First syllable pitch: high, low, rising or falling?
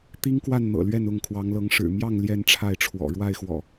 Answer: high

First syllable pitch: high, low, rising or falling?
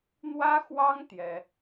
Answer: high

